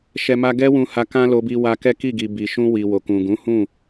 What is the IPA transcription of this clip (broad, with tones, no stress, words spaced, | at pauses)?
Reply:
ʃɛ˨ma˧ ɡɛ˦wũ˧ha˧ kã˧ lo˧bi˧ wa˧kɛ˦ki˦˨ɡi˨ bi˨ ʃũ˧ wi˨ wo˨kũ˨ɡũ˨˦ hũ˦˨